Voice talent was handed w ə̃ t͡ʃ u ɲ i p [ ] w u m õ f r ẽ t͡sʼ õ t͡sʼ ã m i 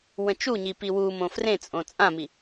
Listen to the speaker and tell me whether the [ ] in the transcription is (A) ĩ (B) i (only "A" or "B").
B